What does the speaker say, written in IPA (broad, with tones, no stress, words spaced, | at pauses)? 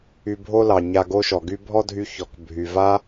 y˧bʱo˥lɑ˩ ɲa˧ɡo˥ʃɔ˩ɡy˥ bʱɔ˥dʱy˧ çɔ˩k bʱy˩va˥